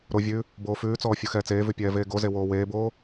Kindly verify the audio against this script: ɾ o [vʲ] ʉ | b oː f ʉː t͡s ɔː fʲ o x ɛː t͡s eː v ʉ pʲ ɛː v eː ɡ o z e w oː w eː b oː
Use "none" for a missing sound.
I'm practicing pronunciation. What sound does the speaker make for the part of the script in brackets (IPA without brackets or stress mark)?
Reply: vʲ